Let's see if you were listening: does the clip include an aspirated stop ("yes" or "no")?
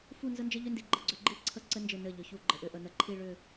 yes